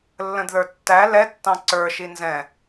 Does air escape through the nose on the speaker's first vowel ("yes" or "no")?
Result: yes